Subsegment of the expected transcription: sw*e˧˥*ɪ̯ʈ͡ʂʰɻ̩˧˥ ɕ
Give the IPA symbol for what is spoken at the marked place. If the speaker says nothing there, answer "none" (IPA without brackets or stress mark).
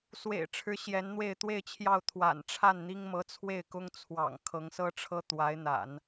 ḛ˨˩